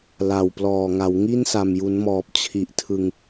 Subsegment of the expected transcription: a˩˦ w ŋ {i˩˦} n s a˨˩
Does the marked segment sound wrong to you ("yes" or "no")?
yes